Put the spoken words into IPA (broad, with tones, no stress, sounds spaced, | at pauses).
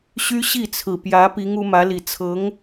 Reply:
ɕ y˥ ɕ i˥˩ t͡sʰ ɹ̩˨˩ p j ä˧˥ p i˧˥ ŋ u˧˥ m ä˧˥ l i˨˩ t͡sʰ ɤ˧˥ ŋ